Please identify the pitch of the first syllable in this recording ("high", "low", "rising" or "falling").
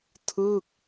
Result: falling